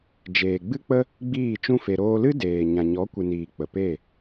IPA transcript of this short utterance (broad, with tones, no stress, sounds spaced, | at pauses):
d͡ʒ eː˨ ɡ͡b ɨ˦ k͡p ə˦ | ɡ͡b iː˦˨ t͡ʃ ũ˦ f e˧ ɾ oː˧ l ɨ˦ d eː˨ ɲ ã˨ ɲ ɔ˨˦ kʷ ɨ˨ n iː˨ k͡p ə˨ p e˦˨